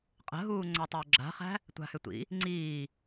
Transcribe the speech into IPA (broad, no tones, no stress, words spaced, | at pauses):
qʼə̤ɦuː ŋ͡ǀatˤʏːɡ͡ǁa̤χæ̤ | tʷa̤hʏtʷḭ | ŋ͡ǀiː